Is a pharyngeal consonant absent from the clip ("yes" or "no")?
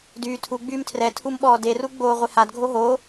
yes